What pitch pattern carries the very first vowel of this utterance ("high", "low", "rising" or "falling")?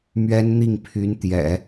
high